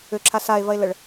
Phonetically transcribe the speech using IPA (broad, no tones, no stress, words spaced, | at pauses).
ʏǁʰa sae̯vɐe̯ləɭ